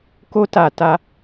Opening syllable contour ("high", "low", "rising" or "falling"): high